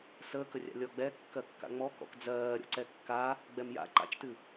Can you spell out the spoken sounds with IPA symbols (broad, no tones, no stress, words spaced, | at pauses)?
səːkərʲa̰ lʲɔɡ͡bɛ kːɜkːa̰ŋ͡mɔkɔ̰k d͡zɜː ɾʲɔ̰ǀɛkːa | ɡ͡bɛmja̰ ǃa̰t͡ʃtɨ